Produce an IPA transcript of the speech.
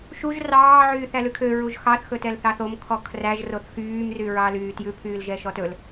ʃuʒ rɑː ʕyːθælʉkʰø ɹuʒxɑθ xɵtɛlθɑθom kʰɔkʰræʒ roθxyːm ryɹɑlyːtjʉ pʰyːlʒɛʃɔtɵl

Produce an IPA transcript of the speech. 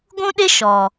ɡʷũ˦ɗɪ˦ ʃɔ˨

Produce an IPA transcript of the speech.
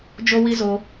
d͡ʒo˦wi˦zo˧

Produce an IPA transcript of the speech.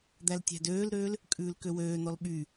d̪æltʲæ̤døːlɾøːl | kʼʉːlkøwøːn̪ɔl ɓy

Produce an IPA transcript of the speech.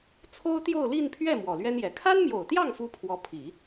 t͡sʰo˥ʊ̯t̪jo˥˧ʊ̯ li˥˧npʰɥɛ˥˩ mwɔ˨˩lɥɛ˥njɛ˨˩ kʰa˥nmjo˨˩ʊ̯t̪jɑ˥˩ŋ fu˥pʰwɔ˧˥ pʰi˨˩˦

